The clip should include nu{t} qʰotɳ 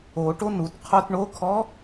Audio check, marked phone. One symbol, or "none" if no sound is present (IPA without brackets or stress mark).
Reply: t